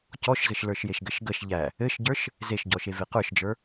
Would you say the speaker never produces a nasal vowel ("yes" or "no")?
yes